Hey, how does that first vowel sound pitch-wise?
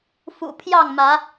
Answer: low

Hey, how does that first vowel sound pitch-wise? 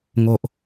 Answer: low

